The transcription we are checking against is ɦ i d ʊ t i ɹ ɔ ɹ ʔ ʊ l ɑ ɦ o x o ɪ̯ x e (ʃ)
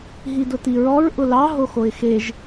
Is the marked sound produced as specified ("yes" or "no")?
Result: no